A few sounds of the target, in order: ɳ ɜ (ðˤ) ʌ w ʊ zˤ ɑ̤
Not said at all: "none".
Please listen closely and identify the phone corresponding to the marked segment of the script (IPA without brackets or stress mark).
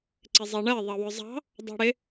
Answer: ðˤ